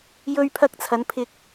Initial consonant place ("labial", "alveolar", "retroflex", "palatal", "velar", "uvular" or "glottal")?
palatal